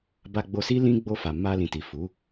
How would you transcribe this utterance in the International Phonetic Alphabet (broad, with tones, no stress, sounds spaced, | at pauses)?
b a˧ ɡ͡b o˧ s i˦ l ĩ˦ ɡ͡b o˧ f a˨ m a˧ l ĩ˨ t i˨ f u˨˦